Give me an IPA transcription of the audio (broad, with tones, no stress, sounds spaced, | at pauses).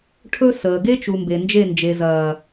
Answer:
ʈʰ ɵ˦ s əː˨ ɡ e˦ t͡ʃ u˨ m b e˨ n d͡ʒ e˦˨ n d͡ʒ e˨ z ɐː˨